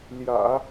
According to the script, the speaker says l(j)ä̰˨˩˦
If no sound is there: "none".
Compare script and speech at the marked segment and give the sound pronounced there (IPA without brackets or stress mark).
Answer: j